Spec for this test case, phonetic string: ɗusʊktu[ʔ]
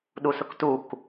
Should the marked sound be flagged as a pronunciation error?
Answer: yes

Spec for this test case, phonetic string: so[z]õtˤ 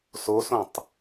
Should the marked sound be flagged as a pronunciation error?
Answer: yes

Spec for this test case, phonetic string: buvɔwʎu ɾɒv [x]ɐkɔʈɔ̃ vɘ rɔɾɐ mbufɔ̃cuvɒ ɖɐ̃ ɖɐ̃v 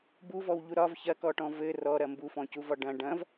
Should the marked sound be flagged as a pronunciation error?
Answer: yes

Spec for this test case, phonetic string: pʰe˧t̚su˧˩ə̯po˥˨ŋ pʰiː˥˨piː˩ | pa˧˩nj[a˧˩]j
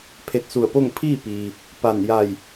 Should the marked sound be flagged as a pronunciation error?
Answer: no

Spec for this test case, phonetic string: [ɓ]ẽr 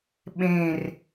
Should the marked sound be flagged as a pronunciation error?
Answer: no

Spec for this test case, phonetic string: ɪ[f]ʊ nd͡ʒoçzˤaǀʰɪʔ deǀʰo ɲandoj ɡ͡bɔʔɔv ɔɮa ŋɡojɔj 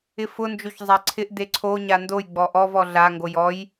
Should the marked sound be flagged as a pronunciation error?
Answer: no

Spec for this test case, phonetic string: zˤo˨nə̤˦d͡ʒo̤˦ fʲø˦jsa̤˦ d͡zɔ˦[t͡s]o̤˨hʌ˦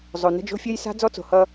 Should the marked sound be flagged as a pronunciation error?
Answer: no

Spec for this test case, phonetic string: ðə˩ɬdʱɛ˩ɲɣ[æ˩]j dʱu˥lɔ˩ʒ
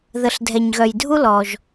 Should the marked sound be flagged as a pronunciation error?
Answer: yes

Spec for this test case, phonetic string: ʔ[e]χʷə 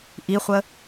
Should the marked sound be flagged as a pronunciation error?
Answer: yes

